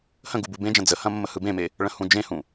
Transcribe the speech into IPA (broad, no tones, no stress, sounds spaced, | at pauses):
h ə̃ ɡ u b u b ẽ d͡ʒ ɐ̃ d͡z ə h ɐ̃ mː ə h ɯ b ẽ m e | ɭ ə̃ h ũ d͡ʒ ẽ h ũ